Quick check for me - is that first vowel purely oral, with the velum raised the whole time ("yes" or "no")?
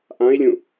no